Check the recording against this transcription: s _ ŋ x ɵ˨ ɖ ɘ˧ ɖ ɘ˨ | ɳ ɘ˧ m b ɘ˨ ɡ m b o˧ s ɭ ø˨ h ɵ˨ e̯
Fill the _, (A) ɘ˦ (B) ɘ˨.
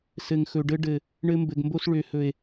B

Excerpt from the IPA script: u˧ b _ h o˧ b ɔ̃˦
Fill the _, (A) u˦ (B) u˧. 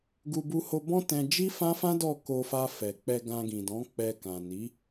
B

